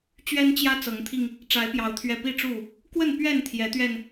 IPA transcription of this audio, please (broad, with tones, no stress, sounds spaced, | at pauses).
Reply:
t͡ɕ ɥ ɛ˦ n t͡ɕ j ä˦ t͡s ɤ˨˦ ŋ t̪ʰ i˧ ŋ | ʈ͡ʂ a˨˦ ɪ̯ p j ɑ˨˦ ʊ̯ t̪ʰ ɥ ɛ˨˩ p i˥˨ ʈ͡ʂ u˥˨ | k w ə˥˨ n p ɥ ɛ˥˨ n t̪ʰ j ɛ˨˦ t̪ ɥ ɛ˧ n